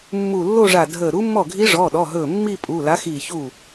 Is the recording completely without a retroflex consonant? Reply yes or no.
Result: no